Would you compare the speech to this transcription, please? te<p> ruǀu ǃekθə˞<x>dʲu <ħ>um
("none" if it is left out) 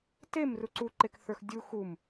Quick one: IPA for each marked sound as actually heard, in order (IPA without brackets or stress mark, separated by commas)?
m, x, x